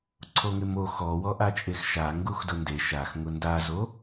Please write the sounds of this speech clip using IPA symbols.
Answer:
ǀʰ o ŋ ɪ m o x ɔ w ɔ ʔ a t͡ʃʼ e x ʃ a ŋ ɡ u x d ʊ n d e ʃ a x ŋ ʊ n d a z o

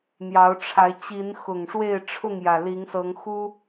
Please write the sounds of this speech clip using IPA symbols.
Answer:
n̪ j ɑ˨˦ ʊ̯ ʈ͡ʂʰ a˨˦ ɪ̯ t͡ɕ i˨˦ n x ʊ˨˩ ŋ ʂ w e˥˨ ɪ̯ ʈ͡ʂʰ ʊ˥˨ ŋ j ä˨˩ l i˨˦ ŋ s ɤ˨˦ ŋ x u˦

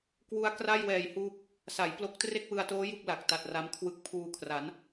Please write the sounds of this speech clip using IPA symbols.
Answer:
k w u˦˥ a̯ k r a˥˩ j w ɛː˨˩ j h uː˦˥ p̚ | s a˩˦ j p l o˥˩ k̚ t r e˥˩ k̚ w ɯ˧ a̯ t oː˦˥ j u˥˩ k̚ l a˨˩ k̚ t a˨˩ t̚ r a˦˥ m kʰ w ɯ˦˥ k̚ pʰ uː˧ kʰ r a˩˦ n

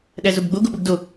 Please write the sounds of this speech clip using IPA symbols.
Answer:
ɗ æ z o b ɡ͡b o ɡ o ɓ u ɡ d o

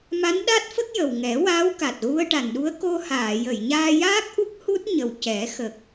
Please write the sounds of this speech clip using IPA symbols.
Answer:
m a˧˥ n ɗ a˦˥ t̚ f ə˦˥ k̚ j ə˨˩ w ŋ ɛ˨˩˦ w aː˧˥ w k a˨˩ t̚ ɣ u˧ ə̯ ʈ a˨˩ n ɗ u˧˥ ə̯ k o˧ h aː˨˩˨ j ə˨˩˨ j ɲ aː˧ j aː˦˥ k̚ ʔ u˦˥ k̚ h u˦˥ t̚ ɲ ə˨˩ w c ɛ˨˩˦ x ə˨˩ k̚

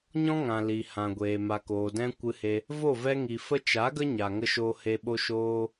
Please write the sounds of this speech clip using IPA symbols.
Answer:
ɲ ɔ̃˦ ŋ ã˨ l i˨ h ã˨ ɡʷ eː˨ m a˨ k oː˨ d ɛ̃˧ kʷ ɨ˧ h e˧ | v o˦˨ v ɛ˧ ŋ i˨ f ə˦ t͡ʃ a˨˦ ɡ ə˦ ɲ a˨ ŋ ə˧ ʃ o˧ h e˧ ɓ o˧ ʃ oː˧

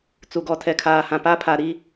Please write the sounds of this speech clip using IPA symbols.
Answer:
t͡s u˨ ɡ ɔ˨ tʰ ɛ˨ kʰ aː˨ h ã˨ p a˦ pʰ a˨ ɾ i˦

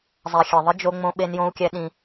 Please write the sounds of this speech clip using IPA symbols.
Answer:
zˤ ɛ˨ xʲ ɛ˨ ðˤ ɪ˦ d͡ʒ o˦ ŋ͡m õ˦ ɓ e˦ n j õ˦ u̯ kʲ ɛ˦ ɗ ĩ˦

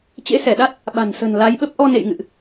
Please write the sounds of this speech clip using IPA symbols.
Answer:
t͡ɕ ḛ˧˥ s ɛ˧˩ ɗ a˦˥ t̚ | ɓ a̤˨˩ n s ə̤˨˩ n l a˨˦ j ɓ ə˦˥ p̚ ʔ ɔ˧ n ḛ˧˨ j ŋ ɨ̰˧˨ ʔ

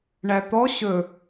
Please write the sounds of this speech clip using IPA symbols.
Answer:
ɳ æ t̪ ɔ ɕ ɵ

